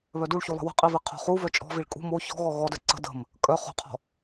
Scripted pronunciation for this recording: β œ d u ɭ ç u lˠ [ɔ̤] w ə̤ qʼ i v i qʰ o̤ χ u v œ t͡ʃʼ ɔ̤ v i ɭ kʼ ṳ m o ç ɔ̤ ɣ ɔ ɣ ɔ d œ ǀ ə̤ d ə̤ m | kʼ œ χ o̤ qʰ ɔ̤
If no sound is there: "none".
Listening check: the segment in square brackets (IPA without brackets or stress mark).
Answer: ə̤